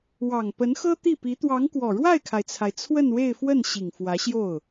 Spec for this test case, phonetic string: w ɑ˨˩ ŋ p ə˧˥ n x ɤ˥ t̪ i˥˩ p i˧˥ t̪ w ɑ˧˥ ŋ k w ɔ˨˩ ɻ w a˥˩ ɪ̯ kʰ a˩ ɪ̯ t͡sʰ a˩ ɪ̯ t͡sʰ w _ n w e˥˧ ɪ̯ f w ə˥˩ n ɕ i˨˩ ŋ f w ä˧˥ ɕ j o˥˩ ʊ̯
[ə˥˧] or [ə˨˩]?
ə˥˧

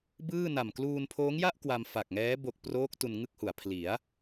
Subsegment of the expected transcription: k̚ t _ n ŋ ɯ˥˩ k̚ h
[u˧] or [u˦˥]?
u˧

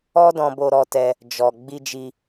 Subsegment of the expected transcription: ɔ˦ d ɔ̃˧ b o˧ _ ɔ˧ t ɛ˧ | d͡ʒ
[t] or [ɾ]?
ɾ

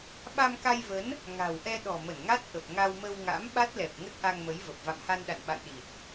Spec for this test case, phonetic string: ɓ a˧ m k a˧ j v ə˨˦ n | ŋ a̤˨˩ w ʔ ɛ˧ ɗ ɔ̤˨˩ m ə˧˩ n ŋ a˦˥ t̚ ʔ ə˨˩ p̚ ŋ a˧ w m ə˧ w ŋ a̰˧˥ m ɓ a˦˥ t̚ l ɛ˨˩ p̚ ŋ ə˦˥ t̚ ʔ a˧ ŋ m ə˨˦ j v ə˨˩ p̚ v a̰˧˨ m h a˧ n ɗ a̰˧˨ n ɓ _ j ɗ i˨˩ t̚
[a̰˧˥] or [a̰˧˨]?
a̰˧˨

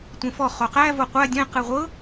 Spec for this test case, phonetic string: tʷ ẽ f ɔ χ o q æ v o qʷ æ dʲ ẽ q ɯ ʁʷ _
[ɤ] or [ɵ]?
ɤ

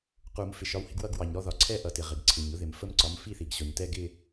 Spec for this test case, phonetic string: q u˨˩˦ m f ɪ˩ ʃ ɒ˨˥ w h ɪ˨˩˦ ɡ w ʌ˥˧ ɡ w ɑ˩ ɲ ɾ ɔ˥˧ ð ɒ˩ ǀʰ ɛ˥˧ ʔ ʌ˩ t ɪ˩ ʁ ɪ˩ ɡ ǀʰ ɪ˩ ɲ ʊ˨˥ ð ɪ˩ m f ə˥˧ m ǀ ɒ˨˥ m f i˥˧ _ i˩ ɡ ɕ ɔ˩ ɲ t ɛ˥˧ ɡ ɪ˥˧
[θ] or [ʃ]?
θ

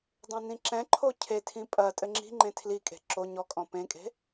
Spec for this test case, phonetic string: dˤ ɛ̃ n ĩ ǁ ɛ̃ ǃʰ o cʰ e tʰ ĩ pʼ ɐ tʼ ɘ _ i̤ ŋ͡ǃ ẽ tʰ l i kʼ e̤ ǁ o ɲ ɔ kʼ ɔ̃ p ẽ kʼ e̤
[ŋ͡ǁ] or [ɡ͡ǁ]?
ŋ͡ǁ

